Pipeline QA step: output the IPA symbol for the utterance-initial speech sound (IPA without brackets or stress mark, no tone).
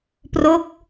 p